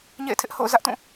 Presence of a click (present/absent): absent